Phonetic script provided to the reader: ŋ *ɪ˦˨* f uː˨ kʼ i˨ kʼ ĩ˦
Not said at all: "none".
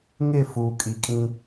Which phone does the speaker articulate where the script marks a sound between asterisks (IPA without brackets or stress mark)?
ɪ˦˨